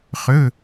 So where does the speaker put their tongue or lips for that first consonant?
uvula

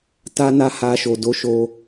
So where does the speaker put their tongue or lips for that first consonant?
tongue tip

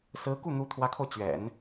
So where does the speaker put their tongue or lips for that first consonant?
tongue tip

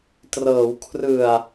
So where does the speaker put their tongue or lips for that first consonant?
tongue tip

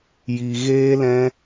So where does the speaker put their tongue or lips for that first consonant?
palate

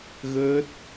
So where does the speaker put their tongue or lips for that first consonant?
velum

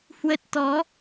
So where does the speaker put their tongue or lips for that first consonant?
throat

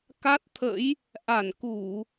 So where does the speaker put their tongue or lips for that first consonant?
velum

